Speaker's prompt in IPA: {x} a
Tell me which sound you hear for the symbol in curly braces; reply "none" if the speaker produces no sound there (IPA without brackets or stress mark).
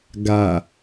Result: ɡ